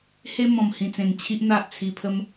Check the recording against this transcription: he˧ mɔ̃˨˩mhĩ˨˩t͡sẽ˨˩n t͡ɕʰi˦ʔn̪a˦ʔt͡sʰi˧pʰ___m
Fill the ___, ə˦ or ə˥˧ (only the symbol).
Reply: ə˦